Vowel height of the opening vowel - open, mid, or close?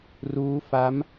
close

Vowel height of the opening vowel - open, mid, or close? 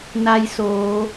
open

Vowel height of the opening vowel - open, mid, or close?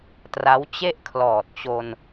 open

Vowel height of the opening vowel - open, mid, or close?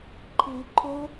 close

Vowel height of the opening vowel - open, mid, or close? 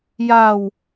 open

